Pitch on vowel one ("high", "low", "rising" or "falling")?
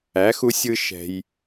rising